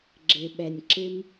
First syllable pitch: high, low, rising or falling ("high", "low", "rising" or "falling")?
low